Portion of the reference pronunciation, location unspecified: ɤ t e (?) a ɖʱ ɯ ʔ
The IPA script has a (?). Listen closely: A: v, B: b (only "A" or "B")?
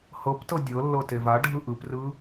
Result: A